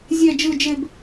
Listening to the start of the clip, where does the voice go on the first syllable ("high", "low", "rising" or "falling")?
falling